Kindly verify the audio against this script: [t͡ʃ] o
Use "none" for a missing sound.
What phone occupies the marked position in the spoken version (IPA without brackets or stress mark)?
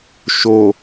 ʃ